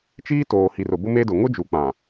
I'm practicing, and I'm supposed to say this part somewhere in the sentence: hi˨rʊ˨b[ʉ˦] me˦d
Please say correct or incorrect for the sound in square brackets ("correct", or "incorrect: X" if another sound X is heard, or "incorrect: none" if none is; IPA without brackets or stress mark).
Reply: incorrect: ʊ˦